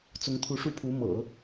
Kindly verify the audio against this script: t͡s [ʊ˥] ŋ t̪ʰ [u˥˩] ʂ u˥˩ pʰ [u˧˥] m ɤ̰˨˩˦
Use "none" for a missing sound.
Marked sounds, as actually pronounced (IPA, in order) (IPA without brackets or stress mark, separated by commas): ʊ˧˥, u˧˥, u˧˥